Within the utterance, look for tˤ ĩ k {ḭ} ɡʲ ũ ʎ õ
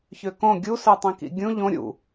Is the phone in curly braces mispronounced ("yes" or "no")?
no